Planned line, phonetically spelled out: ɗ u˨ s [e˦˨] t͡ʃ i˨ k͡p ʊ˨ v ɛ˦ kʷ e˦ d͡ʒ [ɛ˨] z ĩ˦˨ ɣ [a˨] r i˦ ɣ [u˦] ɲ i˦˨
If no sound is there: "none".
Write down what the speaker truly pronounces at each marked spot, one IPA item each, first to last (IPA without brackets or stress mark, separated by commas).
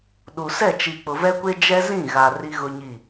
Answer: ɛ˦˨, ɛ˦, a˨, ʊ˦